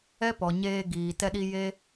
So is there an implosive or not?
yes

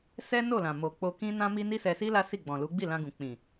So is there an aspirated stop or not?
no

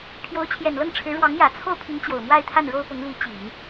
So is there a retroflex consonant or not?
yes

